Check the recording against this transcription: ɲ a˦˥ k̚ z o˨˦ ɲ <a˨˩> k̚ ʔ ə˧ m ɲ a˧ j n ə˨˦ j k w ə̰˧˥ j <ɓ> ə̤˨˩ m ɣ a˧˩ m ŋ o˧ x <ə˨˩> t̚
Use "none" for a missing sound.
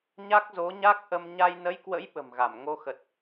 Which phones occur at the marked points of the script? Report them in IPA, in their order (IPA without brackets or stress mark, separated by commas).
a˦˥, ɓ, ə˨˩